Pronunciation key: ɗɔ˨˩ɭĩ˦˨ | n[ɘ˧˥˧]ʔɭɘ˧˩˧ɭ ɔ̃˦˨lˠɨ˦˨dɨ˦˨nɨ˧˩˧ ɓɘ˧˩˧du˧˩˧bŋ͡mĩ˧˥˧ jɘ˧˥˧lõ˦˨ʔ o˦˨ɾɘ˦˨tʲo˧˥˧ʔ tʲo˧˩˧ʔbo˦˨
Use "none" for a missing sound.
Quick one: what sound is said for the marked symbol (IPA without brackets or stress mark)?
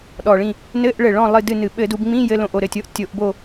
ɘ˧˥˧